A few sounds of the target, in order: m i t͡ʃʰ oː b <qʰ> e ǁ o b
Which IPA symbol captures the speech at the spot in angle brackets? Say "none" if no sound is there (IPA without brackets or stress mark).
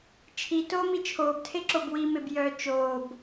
tʰ